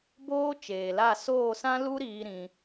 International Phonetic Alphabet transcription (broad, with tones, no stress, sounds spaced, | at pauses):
b oː˦ t͡ʃ eː˨ l a˦˨ s oː˦˨ s ã˦ l u˦ ɾ iː˧ ɾ ĩ˧